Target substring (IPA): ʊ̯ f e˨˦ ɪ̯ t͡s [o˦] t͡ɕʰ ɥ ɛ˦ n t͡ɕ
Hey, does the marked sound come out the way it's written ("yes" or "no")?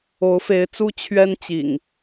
no